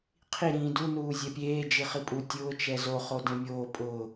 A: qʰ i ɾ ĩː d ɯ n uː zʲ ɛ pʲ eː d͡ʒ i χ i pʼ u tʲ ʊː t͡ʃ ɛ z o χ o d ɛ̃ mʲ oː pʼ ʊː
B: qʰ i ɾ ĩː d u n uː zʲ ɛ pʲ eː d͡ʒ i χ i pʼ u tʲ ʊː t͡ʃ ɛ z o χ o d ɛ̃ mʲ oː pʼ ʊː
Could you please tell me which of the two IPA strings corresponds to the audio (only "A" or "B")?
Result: B